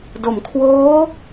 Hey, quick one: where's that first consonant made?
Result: tongue tip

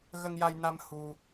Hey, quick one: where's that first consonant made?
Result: velum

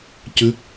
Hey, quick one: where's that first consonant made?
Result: palate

